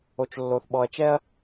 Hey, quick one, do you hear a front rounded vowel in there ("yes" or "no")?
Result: no